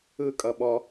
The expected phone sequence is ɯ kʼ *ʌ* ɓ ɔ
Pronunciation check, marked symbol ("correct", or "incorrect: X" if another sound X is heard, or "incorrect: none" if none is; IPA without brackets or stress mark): correct